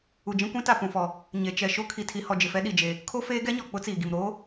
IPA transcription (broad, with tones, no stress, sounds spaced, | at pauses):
u˨ d͡ʒ ĩ˦ kʷ ĩ˦ t a˦˨ p ũ˨ f ɔ˨ | ɲ e˨ t͡ʃ ɛ˨ ʃ o˦ kʰ i˨ tʰ i˨ h ɔ˨ d͡ʒ ɪ˨ f ɛ˦ ɗ i˨ d͡ʒ e˨ | kʰ o˦ f eː˦ ɡ ɛ˦ ɲ ɔ˨ k͡p ʊ˦ t͡s iː˨ ɡ i˨ m ɾ oː˦